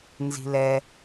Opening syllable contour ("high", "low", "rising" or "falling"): low